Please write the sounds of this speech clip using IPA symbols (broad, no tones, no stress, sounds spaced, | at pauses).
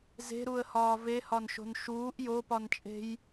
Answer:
z e̤ ɾ u ə̯ h ɒː v e h ɒ n ʃ o̤ n ʃ uː ʔ j o p ɒ n t͡ʃʼ e̤ j